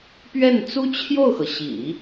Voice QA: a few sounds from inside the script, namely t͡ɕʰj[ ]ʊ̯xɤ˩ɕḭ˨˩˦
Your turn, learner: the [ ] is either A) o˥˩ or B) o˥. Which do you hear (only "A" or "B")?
A